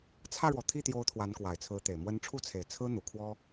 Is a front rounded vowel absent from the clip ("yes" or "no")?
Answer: yes